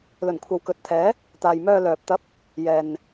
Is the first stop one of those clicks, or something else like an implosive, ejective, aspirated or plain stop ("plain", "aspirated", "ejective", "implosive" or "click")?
aspirated